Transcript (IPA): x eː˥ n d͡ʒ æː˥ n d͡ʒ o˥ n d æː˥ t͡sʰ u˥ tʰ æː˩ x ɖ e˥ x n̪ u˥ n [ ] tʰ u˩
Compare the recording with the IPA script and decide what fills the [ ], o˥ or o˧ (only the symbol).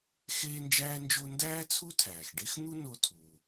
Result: o˧